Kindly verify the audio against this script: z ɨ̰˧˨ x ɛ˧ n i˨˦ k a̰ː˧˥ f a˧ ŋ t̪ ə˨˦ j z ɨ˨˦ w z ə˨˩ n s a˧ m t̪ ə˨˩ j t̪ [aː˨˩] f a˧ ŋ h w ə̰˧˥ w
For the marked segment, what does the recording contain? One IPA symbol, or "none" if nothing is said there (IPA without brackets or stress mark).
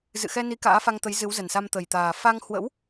aː˨˩